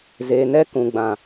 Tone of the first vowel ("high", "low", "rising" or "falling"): low